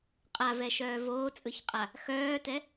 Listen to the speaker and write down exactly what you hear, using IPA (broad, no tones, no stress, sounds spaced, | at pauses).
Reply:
qʼ a v ɛ ʃ œː v oː t͡sʼ ɯ ç qʼ a | x œː t ɛ